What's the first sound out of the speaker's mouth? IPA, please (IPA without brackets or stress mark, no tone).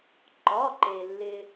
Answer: ǃ